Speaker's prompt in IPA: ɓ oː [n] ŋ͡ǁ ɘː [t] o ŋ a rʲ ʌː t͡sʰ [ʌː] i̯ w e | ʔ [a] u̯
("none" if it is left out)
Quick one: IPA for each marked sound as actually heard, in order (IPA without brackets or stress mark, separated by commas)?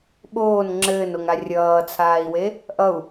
n, n, aː, ʌ